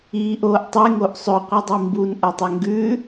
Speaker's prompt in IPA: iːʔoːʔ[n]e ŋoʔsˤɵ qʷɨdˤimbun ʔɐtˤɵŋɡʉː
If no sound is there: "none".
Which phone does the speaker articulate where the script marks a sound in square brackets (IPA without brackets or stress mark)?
tˤ